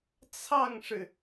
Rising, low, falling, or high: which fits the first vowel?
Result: falling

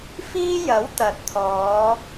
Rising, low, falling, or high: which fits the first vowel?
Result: high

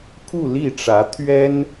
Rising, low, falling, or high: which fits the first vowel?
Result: falling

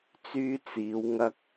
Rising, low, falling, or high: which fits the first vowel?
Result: high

